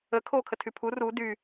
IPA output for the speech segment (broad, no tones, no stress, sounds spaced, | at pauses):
ə kʰ oː kʰ ə tʰ y pʰ u r u d y